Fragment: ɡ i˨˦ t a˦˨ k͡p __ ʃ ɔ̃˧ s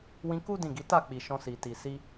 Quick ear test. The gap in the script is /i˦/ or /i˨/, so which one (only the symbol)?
i˨